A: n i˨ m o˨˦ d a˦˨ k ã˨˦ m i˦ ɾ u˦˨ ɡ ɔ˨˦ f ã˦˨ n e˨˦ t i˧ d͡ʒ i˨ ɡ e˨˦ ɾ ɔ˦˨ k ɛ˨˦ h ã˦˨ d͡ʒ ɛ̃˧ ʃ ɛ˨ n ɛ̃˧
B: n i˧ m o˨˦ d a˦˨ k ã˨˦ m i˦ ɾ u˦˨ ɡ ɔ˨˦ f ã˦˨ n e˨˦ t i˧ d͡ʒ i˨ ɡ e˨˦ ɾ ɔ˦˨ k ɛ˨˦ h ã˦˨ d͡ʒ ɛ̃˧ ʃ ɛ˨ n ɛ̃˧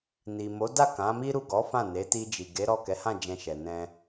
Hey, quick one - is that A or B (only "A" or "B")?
A